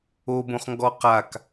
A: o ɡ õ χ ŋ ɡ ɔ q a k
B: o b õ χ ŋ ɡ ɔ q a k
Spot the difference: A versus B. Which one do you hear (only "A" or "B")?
B